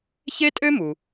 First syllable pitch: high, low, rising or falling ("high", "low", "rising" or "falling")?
high